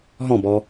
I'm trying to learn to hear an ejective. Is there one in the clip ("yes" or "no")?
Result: no